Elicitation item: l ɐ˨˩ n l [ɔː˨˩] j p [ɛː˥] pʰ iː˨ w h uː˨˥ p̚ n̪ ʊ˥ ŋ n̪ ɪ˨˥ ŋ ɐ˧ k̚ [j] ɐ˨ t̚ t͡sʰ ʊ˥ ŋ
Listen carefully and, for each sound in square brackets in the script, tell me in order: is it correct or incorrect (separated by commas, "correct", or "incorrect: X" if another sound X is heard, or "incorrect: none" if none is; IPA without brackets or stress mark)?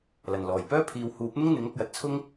correct, incorrect: œː˥, correct